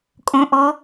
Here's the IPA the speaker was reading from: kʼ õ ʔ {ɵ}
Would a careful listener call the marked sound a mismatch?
yes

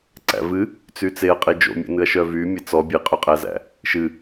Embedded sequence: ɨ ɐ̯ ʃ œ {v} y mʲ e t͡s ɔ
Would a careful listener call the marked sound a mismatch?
no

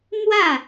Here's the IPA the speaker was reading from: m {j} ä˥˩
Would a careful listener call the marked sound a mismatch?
yes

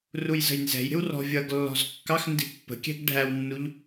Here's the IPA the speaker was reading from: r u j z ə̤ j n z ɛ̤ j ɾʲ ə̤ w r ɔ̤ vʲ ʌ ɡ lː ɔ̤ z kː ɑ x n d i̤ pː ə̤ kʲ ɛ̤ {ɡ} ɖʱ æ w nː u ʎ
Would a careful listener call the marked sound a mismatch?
no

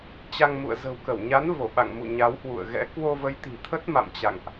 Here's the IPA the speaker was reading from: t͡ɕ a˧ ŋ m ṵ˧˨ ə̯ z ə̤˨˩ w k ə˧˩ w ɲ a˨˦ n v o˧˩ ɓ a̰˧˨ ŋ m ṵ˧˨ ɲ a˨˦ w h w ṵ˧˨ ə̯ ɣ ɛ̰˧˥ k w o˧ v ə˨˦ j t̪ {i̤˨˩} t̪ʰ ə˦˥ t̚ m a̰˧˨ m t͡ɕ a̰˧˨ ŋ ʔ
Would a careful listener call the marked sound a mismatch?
no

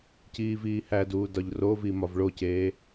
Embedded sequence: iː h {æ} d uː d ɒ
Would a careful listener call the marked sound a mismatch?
no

